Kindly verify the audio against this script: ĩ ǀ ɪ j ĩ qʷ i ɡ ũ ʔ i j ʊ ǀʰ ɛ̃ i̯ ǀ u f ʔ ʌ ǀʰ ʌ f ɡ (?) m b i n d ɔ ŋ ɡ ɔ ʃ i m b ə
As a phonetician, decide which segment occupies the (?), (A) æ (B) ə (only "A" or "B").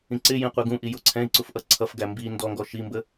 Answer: A